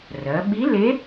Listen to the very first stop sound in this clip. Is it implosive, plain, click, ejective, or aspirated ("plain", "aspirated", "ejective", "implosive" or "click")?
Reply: implosive